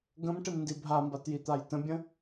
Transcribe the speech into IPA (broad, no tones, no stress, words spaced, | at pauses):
ɡə̃mʈɪmndi bʱambatjit̪aj tə̃bʲə̃